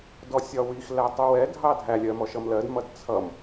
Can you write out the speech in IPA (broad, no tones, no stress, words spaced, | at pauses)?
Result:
dɔsʲɒwix lætˤuwɛ dʱɑdʱælʲɜ mɔʃʌmlɜd mʌdt͡sʰʌm